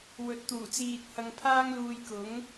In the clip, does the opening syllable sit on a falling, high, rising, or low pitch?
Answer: rising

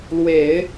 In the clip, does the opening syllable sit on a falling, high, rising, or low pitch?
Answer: low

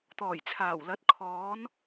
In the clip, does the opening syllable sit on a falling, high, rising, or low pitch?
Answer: low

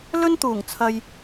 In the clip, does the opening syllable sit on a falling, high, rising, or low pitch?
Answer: high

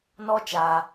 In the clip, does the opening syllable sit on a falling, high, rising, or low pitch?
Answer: high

